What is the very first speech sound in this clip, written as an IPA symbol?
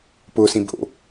p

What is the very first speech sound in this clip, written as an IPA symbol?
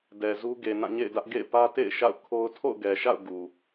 d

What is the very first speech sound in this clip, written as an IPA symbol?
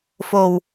f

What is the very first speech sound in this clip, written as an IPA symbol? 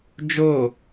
d͡ʒ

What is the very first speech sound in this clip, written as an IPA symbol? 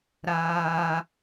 ɾ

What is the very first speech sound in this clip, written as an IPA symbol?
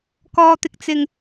k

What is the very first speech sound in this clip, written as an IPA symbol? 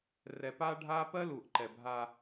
r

